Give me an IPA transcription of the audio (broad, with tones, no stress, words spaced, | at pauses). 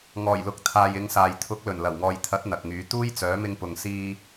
ŋɔː˨˩jlʊ˨k̚t̪ʰaː˨j ɪ˨˧ŋsaː˨j t̪ʰʊ˨˥k̚lɵ˨˩nlɐ˨˩wŋɔː˨j t̪ʰɐ˨˥t̚ n̪ɐ˨k̚ŋyː˨˥ t̪uː˥jt͡sœː˨˥ mɪ˧ŋpʊ˨ŋsiː˧